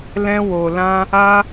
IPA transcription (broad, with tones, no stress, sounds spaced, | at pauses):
l ɛ̃˧ w o˨ l ã˧ | a˧